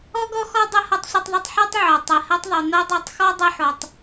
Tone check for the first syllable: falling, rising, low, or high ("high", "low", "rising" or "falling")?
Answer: high